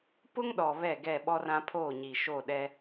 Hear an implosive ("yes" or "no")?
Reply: yes